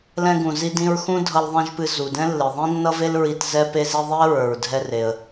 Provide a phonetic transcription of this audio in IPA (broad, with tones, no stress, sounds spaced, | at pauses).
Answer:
l ɛ̃˧ ɡ ũ˩ z i˧ d ĩ˧ ɹ x ũ˥ dʱ ʌ˧ l ðˤ ĩ˧ ʒ p ɨ˧ z u˩ d ɛ̃˥ lː ɨ˩ ðˤ ĩ˥ nː ʌ˥ v e˥ l ɹ i˧ t z ɛ˧ p e˧ z i˧ ðˤ i˥ ə̯ ɹ ə˞˩ ɹ dʱ ɛ˧ r e˩ ə̯